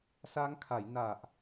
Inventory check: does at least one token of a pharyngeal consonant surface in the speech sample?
no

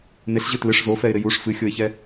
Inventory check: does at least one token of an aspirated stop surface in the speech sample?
no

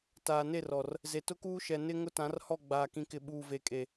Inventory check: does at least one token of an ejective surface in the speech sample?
yes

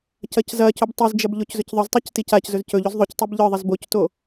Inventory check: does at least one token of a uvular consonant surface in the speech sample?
no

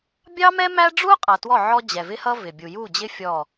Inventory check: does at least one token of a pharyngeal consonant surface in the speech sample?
yes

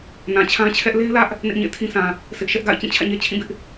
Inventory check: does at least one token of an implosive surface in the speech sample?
no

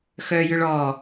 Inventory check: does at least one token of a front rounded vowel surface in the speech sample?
yes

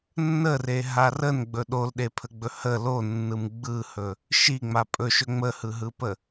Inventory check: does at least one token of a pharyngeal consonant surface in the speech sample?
no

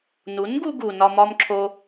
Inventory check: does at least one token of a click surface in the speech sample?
yes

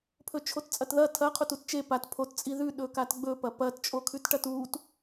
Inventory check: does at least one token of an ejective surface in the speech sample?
yes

